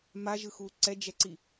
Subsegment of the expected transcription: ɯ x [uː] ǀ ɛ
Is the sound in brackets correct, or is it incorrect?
correct